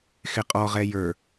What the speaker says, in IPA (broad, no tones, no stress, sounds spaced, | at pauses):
x ɪ qʼ ɔ ʁ ɛ j ə˞